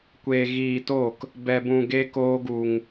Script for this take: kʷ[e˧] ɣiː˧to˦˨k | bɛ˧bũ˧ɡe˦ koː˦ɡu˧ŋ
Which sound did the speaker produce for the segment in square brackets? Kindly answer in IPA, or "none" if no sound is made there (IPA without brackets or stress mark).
e˧